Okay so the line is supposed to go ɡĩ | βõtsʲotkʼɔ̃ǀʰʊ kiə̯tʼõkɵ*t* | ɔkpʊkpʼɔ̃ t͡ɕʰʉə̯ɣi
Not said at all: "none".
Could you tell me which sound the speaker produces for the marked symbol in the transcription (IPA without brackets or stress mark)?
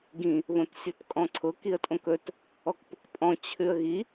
t